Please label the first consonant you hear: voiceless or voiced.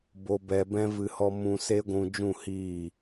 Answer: voiced